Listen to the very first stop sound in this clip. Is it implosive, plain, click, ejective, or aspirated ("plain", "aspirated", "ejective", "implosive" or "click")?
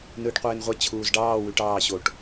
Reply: plain